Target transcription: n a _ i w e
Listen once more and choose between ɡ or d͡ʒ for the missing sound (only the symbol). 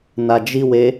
d͡ʒ